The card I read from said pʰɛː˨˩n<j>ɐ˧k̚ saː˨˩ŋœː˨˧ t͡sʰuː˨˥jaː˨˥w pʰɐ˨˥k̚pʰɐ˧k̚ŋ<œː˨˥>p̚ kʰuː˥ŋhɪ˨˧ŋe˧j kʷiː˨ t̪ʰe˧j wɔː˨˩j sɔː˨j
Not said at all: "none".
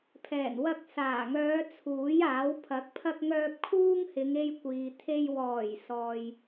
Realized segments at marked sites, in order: w, œː˧

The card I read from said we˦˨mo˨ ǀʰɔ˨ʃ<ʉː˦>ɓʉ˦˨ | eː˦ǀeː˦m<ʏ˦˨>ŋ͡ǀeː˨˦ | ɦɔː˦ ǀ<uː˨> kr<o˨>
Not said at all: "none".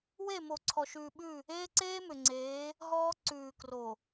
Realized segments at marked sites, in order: ʉː˨, ʏ˨, ʉː˨, o˨

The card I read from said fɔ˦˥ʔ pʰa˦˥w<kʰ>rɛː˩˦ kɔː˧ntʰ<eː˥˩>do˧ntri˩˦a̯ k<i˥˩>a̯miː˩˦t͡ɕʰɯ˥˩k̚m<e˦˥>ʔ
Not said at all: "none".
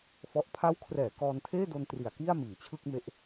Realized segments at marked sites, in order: kʰ, eː˥˩, i˥˩, e˦˥

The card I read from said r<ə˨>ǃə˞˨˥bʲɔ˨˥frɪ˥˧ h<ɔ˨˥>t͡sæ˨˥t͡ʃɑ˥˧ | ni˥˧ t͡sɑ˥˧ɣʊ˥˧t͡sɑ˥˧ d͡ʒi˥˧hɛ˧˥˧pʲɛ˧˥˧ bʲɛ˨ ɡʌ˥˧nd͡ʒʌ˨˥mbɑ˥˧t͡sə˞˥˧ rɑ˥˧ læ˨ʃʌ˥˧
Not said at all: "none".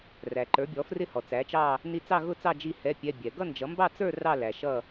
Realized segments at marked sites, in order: æ˨, ɔ˨

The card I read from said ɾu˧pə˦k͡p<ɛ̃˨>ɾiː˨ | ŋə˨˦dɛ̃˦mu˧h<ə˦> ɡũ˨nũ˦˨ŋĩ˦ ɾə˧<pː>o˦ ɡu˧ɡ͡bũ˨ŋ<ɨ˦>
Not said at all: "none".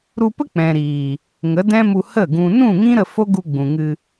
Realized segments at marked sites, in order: ɛ̃˨, ə˦˨, f, ɨ˧

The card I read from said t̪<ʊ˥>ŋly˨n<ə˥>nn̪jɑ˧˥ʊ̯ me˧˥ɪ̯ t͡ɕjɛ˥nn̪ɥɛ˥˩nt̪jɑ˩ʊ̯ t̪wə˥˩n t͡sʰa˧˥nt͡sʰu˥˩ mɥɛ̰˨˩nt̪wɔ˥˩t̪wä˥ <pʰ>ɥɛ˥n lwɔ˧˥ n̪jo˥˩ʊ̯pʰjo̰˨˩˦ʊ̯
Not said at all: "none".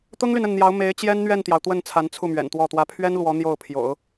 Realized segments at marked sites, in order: ʊ˥, ə˥˩, pʰ

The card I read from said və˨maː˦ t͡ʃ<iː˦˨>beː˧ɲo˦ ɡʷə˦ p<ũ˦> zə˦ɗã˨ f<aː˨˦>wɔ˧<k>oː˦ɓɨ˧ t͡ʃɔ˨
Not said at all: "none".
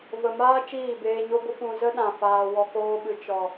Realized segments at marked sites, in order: iː˦˨, ũ˧, aː˧, k

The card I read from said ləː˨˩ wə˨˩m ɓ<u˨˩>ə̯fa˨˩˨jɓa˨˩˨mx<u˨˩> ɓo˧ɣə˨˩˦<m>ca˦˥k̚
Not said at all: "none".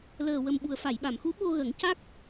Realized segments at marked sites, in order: u˨˩, u˧˥, ŋ

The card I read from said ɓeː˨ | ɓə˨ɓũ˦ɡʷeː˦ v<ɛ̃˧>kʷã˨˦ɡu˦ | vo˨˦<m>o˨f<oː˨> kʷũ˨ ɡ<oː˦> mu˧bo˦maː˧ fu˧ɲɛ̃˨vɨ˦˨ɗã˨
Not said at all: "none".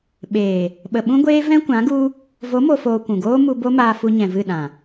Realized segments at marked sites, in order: ɛ̃˦, m, oː˨, oː˦

